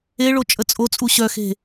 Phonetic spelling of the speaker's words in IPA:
e ɭ o t͡ʃʼ ə t͡sʼ o t͡sʼ u ɕ œ x e̤

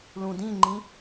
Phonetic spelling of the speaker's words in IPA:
l ũ d ĩ ŋ͡ǃ ĩ

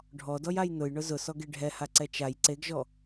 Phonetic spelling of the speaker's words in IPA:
ɖʱ ɔ d ɔ j a j n ʊ j ɳ ʊ z ʊ s ɔ ɡ e ɖʱ ɛ h a ǀ ɛ t͡ʃ a j ǀ e ɡ ʒ ɔ

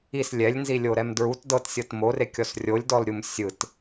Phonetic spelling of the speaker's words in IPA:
i s lʲ ɛ lʲ n z i lʲ o ɾ ɛ m d ɹ u t d ɤ t sʲ ɤ t m o r e kʲ ɔ s rʲ o lʲ d ɔ l ɾʲ u m sʲ ɯ t

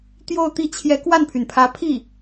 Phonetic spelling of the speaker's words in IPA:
t̪ j o˥˧ ʊ̯ t̪ i˥˩ t͡ɕʰ j ɛ˧˥ k w a˥˩ n pʰ y˩ n pʰ ä˧˥ pʰ i˥˩

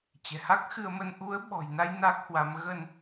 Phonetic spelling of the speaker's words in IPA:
t͡ɕ ɛ̤˨˩ h a˦˥ k̚ x ɨ˧ ə̯ m ə˧ n ʔ u˨˦ ə̯ ɓ ɔ̤˨˩ j n a˧ j n a˦˥ k̚ h w a˨˦ m ɣ ə˧ n

